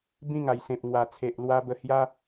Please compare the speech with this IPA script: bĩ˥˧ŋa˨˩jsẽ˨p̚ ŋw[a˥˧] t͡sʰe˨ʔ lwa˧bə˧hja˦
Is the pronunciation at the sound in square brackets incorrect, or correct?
incorrect